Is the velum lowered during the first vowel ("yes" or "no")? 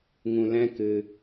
yes